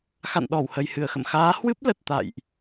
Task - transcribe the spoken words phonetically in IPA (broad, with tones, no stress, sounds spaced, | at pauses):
x a̰˧˨ n ɗ ɔ˧˩ w h ə˨˩ j h ɨ˧˩ ə̯ x ə̰˧˨ m x aː˨˦ h w ɨ˦˥ p̚ l ə˨˩ t̚ t̪ a̰˧˨ j ʔ